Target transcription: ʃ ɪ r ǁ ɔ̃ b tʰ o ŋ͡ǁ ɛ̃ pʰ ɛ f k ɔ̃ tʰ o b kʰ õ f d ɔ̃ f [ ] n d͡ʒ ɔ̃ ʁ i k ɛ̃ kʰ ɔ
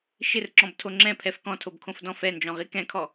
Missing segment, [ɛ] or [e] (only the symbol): ɛ